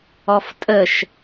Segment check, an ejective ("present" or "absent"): present